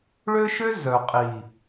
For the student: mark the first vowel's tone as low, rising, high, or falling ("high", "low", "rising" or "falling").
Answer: high